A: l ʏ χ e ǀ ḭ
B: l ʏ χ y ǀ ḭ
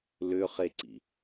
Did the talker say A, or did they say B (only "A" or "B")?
A